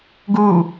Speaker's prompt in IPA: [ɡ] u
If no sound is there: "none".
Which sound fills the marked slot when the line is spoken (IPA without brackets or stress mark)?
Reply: ɡ